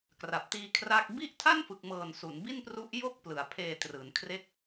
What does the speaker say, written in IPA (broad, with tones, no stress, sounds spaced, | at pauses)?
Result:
k r a˨˩ p̚ t iː˧ kʰ r a˥˩ k̚ b i˥˩ ʔ tʰ a˥˩ n f ɯ˨˩ k̚ m ɤː˨˩ n s u˩˦ n b i˥˩ n p r u˦˥ ʔ j o˥˩ k̚ p l ɯ˨˩ a̯ pʰ eː˧ t r ɯː˩˦ n kʰ r e˥˩ k̚